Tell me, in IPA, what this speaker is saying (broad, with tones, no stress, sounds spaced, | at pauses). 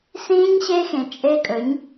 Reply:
s ĩː˦ ɲ ɕ e˦ x ẽ˨ t͡ʃʼ e˧ kʼ ɵ˨˦ ɲ